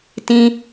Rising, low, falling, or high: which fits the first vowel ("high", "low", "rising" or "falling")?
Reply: high